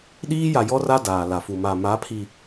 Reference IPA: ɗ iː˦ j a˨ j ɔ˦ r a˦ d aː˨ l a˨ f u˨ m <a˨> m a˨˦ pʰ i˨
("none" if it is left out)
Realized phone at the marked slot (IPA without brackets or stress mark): a˨